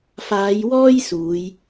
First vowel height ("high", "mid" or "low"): low